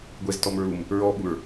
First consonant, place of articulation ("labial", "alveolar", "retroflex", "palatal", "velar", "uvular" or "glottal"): velar